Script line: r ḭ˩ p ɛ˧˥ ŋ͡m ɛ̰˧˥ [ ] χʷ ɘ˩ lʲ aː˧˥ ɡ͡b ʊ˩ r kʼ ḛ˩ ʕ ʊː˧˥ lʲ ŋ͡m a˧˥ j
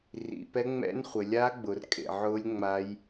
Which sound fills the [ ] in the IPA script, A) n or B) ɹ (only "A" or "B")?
A